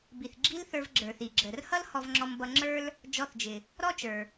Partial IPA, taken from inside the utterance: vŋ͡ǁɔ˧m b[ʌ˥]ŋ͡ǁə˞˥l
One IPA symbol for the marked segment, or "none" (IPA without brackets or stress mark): ʌ˧